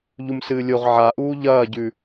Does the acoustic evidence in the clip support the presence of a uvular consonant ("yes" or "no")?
yes